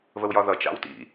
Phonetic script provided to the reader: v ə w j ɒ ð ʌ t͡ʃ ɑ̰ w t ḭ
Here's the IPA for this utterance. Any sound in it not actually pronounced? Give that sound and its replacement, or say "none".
none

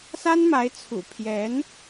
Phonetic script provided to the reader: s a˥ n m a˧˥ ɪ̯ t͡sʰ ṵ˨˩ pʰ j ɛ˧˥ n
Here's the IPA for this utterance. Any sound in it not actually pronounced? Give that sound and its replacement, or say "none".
none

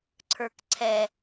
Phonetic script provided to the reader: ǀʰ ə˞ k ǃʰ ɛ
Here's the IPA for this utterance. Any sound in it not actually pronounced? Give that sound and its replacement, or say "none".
ǃʰ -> ǀʰ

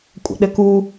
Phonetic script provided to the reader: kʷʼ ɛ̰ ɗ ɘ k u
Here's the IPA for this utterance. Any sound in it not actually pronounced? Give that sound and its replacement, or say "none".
none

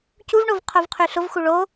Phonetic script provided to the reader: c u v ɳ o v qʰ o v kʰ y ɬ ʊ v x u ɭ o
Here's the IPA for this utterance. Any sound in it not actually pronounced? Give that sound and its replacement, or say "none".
kʰ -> qʰ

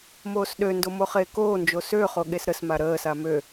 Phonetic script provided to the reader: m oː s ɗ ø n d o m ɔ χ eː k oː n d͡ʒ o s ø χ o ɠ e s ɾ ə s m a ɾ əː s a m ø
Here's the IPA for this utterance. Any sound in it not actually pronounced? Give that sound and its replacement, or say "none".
ɔ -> o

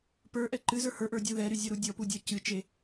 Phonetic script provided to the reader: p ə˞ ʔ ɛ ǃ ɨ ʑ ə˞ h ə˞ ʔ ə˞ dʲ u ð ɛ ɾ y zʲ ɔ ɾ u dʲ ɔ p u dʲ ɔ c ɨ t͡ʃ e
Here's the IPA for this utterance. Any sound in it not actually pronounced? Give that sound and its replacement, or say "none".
ʑ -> z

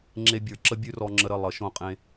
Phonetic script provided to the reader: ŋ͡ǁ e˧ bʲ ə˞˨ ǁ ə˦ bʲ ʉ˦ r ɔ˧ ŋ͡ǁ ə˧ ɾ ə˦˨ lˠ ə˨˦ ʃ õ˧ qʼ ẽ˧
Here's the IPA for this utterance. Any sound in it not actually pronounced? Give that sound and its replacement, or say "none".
none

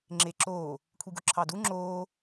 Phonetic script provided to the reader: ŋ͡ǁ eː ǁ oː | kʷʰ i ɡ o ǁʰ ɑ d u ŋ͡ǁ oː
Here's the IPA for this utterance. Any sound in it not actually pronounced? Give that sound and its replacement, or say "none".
none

